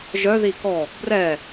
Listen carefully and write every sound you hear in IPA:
ʒœði kɔ | brɛ

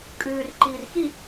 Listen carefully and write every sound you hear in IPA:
kʼʉːrǃiːr xi

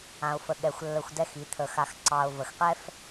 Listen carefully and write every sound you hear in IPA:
ã˨ʊ̯fə˨ ɠɛ˨xʷ lːə˨xʷ dɛ˦xi˨˦ t̪ʰə˨xa˨x ǀɑ˨ʊ̯ və˨xqɛ˦f

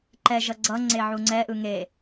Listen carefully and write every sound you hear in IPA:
ǃɛʒʌ ɡ͡ǀʌ ŋ͡ǀeʕuŋ͡ǀɛʔɯ ŋe

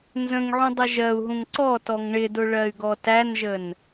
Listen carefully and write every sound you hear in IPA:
nzə̃ŋʕũ dˤəʒɜu̯ɦũŋ ǀɔtɔŋ ɳɪdʊ ɭɜy̯ɡɔtænʒən

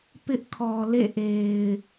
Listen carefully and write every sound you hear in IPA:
pɪ˦ʔkʰɔ˨lḛ˦˨ʔe˨ɪ̯

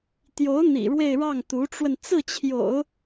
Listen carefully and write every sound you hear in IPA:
t̪jo˧˥ʊ̯ n̪ḭ˨˩ ɻwe˥˧ɪ̯ɻɑ˥˩ŋ t̪u˧˥ʈ͡ʂwə˧n t͡sɹ̩˥˩t͡ɕʰjo̰˨˩˦ʊ̯

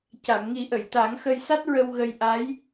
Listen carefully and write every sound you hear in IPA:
ca˨˩˨mŋi˨˩˦ʔə˨˩˨jt̪a˨˩˦ŋ xə˧jsa˦˥t̚ ɹə˧w ɣə˧jʔa˧˥j

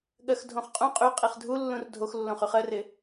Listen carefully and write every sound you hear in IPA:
ɠɜxdʱõχqʼũ qʼy qʼiχdʱulːũr dʱoxlːõχyχ ɜrɪ

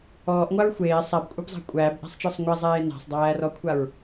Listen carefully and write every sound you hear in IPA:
ɔːʔŋʷaɹ xʷeː sˤabkʷʼabzˤa̤ kʷʼæːbʔæ̤sˤt͡ʃɔsˤ ŋʷɛzˤeː na̤sˤdˤæːrɔkʷʰaɹ

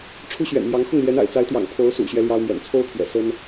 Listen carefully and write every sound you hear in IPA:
ʈ͡ʂʰu˥ɕɥɛ̰˨˩nmjɑ˧˥ŋ xʊ˥˩ŋljɛ˧˥n a̰˨˩ɪ̯t͡sa˧˥ɪ̯t̪jɑ̰˨˩ŋ pʰo˧˥ʊ̯sṵ˨˩ɕɥɛ˦ ljɑ˥ʊ̯mjɛ̰˨˩n t͡sʰo˥ʊ̯t̪ʰɥɛ̰˨˩ sə˥n

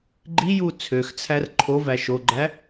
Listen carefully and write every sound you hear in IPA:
ɡ͡ǃiju t͡sʰøxt͡sʰær ǃʰovæ ʃoɡ͡ǃæ

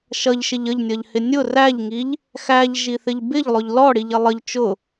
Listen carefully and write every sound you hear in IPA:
ʃʌʎʃɪʎ əʎnʲʌʎhɪ nʲʊ ræʎŋiʎ | xæʎʒiθɪʎ bɪʎlˠʊʎ lɔɽiʎɪ lˠəʎ t͡ʃʊ

